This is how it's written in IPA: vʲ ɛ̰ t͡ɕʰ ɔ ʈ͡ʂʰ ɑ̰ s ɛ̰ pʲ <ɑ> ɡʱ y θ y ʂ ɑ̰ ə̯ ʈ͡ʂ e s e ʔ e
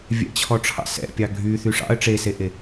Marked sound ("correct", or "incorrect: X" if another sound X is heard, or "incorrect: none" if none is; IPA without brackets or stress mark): correct